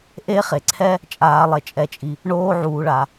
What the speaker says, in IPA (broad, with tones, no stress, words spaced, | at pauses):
ʔe˧˥χe˩ǀʰɛ˧ | t͡ʃʼaː˩˧lˠe˩t͡ʃʼɛ˩˧t͡ʃʼi˩ | ɳoː˧ʕuː˩ɭa˩